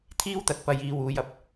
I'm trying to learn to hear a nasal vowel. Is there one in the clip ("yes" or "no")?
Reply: no